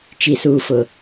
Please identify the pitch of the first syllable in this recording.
low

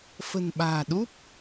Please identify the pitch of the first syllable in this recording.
low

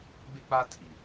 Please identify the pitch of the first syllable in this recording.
high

